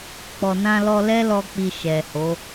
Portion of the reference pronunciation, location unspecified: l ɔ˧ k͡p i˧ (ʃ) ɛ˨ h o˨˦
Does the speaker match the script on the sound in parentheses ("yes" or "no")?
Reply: yes